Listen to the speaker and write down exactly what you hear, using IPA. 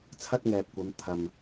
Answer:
t͡sʰ ɐ˥ t̚ ŋ ɛː˨ p̚ kʷ ɐ˨˧ m t̪ʰ ɐ˨ m

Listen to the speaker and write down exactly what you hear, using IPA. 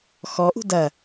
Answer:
x ɔ ʔ ṳ d ɐ

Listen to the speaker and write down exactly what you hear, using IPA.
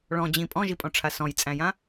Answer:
ɭ ɔ̃ d͡ʑ ĩ pʼ ɔ̃ ʒ i pʼ ɔ̃ ʈ͡ʂʰ a s ɔ̃ j t͡sʼ æ̃ j ã

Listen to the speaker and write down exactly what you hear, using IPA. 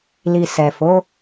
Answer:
l i˨ s ɛ˨ f o˨˦

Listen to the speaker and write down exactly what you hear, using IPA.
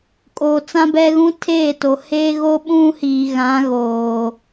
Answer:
kʼ oː˨ t͡s ã˦ b ɛ˦ ɣ ũ˦ tʰ eː˦˨ t o˨ h eː˦ ɣ o˦ ɓ ũ˦ h iː˨ ɣ ã˨˦ ɣ oː˨

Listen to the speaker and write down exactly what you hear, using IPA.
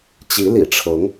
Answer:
t͡ɕ i˧˥ l ḭ˨˩ ʈ͡ʂʰ ɤ˧˥ ŋ

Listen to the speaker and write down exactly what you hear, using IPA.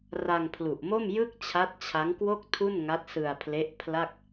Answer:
r a˧ ŋ pʰ l u˨˩ ʔ m o˥˩ m j ɯ˥˩ k̚ t͡ɕʰ a˦˥ t̚ t͡ɕʰ a˦˥ ŋ k w o˥˩ k̚ tʰ u˥˩ n ŋ a˦˥ t̚ s ɯ˧ a̯ pʰ l e˦˥ ʔ pʰ l a˥˩ k̚

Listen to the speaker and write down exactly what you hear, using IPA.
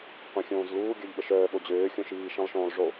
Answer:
qʷ ĩ xʲ õː z l uː ɡʲ œ ʎ ɓ ə ʃ œː ɓ o d͡ʑ øː xʲ õ ʃ iː ʃ ĩ lˠ ʃ õː lˠ ʐ o

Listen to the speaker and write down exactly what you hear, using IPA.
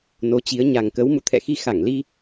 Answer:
n o˨˦ t͡ɕ i˨˦ ə̯ ɲ a˨˩ ŋ k ə˨˦ w m ṵ˧˨ t̪ʰ ɛ̰˧˨ x i˧ x a˧˩ ŋ l i˧

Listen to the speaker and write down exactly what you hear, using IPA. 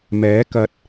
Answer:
m ɛː˨˥ k ɐ˨˥ t̚

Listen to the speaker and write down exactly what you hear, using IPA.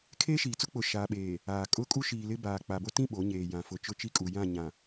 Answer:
kʰ eː˦ ʃ iː˨ t͡s ʊ˦ k͡p ʊ˨ ʃ aː˨ ɓ eː˨ | aː˨ kʼ ʊ˦ kʼ u˦ ʃ iː˨ l ɪ˦ b aː˨ k͡p a˨ b o˦ t ĩ˦˨ ɓ o˨˦ ɲ eː˨ j ã˨ f ʊ˨ t͡ʃ ʊ˦ t͡ʃ i˦ kʼ u˨ j ã˦˨ ɲ ã˨

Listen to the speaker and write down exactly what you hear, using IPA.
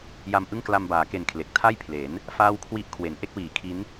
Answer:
j a˧ m ʔ ɯ˥˩ ŋ k l a˧ m b aː˩˦ k e˨˩ n kʰ l e˨˩ k̚ tʰ a˥˩ j pʰ l e˩˦ n | f aː˥˩ w kʰ w i˥˩ ʔ kʰ w e˩˦ n ʔ e˥˩ k̚ w iː˩˦ kʰ i˦˥ n

